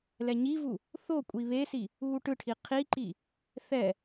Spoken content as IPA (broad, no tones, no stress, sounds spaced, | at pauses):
l ɛ ɲ i v u | θ o kʷʼ i β e s i | uː ʈ ɯ ʈʰ i qʰ i ǃ i | θ ɛ